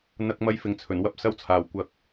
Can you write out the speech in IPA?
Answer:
n̪ ɐ˧ k̚ m ɐ˧ j f ɪ˨ ŋ t͡sʰ ɵ˨˩ n w ɐ˥ p̚ s ɐ˥ w t͡sʰ aː˨˩ w kʷ ɐ˨ k̚

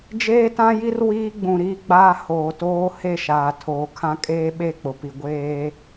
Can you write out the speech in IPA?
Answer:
d͡ʒ eː˦ t ã˦ j i˦ r w iː˦ ɡ͡b ũ˨ ɾ iː˦ ɡ͡b aː˦ h oː˨ t oː˦ h e˦˨ ʃ aː˨ tʰ oː˨ kʰ ã˦ kʼ eː˦ ɓ e˦˨ k͡p ʊ˨ p i˨ ɡʷ eː˦

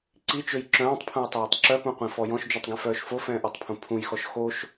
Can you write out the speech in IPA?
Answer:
ǀ i t͡ʃ ø j ǁ œ̃ː tˤ pʰ ũ j tˤ aː tˤ ǁ œ p ũ qʷ ĩ f ɔ j ɔ̃ ʃ d͡ʒ u tˤ ɡ ĩ f œː ʃ f o f ɛ̃ː ʔ ɔ tˤ pʰ ũ pʰ ũ j x ɔ ʃ x o ʃ

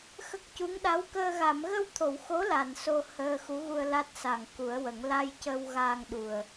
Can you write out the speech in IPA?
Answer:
x ə˦˥ k̚ c u˧˥ ŋ ɗ a˧˥ w k əː˧ ɣ a˨˩˨ m ɣ ə˧ w t̪ʰ o˨˩˨ w x o˧˥ l a˨˩ n s o˧ h əː˧ x u˧˥ ɣ u˧ ə̯ l a˦˥ t̚ s a˨˩ ŋ k u˨˩˦ ə̯ w ə˨˩˦ ŋ l a˧ j c ə˧ w ɣ a˧ ŋ ɗ u˨˩ ə̯

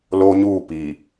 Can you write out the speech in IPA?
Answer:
l oː˦ ɲ uː˦˨ p i˨

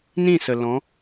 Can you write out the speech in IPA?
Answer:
n ĩ˦˨ s ə˨ l ɔ̃˨˦

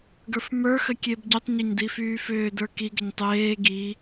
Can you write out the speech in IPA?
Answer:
ɡ ə˞ f m ə˞ x ə kʲ e b ɟ ʏ tˤ ɲ e ɲ d i f yː f ʏː d ə˞ k i ɡ ə ɲ tˤ eː ɡ i

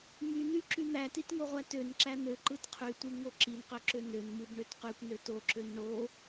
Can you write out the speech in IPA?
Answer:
m y n̪ y ǁ y n̪ æ t i t ŋ o ʁʷ æ t ø n ǁ æ n̪ ø ǃ ɯ t qʰ y tʷ ɯ ŋ o ǁ i n q ø ǁ ø n ø n m ɯ b ɳ ø t q y kʷ n ø t o ǁ ø n ɳ o

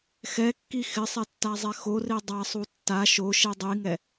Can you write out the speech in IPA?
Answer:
x ɛ kː i x ɪ sˤ ɛ tː a zˤ ɛ x o r i dˤ a sˤ u tː a ʃ o ʃ i dˤ i ŋ ɛ

